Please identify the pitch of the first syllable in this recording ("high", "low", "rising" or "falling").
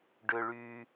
high